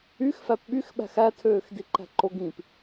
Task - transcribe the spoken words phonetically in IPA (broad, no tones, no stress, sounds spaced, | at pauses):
y x f æ p ɓ y x ɓ æ̤ x æ tʰ øː x d i ǃ æ̤ ǃ o ɡ ĩ p